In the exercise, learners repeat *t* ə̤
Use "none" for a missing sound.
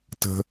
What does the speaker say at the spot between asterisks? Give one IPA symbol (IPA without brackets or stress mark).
t